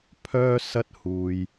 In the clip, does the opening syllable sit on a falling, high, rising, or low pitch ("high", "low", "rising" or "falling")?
high